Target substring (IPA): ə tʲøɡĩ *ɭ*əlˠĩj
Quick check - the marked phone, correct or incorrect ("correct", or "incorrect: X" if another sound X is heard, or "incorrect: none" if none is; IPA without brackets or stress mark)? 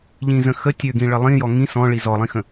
correct